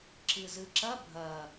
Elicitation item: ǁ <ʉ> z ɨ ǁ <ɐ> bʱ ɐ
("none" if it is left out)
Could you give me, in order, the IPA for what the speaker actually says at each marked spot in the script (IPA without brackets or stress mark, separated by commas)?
ɨ, ɐ